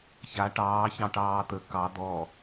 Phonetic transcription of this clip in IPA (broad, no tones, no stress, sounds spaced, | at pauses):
ç a ʈ ɑː ç ɑ̃ ʈ ɑː t̪ ə k ɑ d̪ ɔ